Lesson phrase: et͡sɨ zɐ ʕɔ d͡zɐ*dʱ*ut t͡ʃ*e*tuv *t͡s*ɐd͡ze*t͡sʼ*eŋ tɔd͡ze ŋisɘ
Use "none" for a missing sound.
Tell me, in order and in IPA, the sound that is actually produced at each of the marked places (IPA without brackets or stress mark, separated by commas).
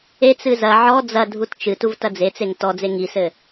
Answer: dʱ, ɨ, t, t͡s